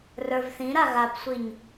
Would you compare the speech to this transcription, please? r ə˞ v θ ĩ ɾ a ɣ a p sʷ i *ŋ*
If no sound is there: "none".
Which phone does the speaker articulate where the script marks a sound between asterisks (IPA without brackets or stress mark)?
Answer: ɲ